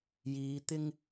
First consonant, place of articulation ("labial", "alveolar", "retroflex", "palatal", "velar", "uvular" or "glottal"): palatal